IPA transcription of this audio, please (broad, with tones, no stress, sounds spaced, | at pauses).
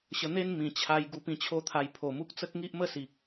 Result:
ɕ ə˧ n̪ e˦ n m ĩ˨˩ t͡ɕʰ a˧ j ɡ u˧ p ĩ˧ t͡ɕʰ o˥˧ t̪ʰ a˧ j pʰ o˨˩ m u˦ k̚ t͡s ə˦ k̚ ŋ i˦ ʔ m ə˥˧ s i˨ k̚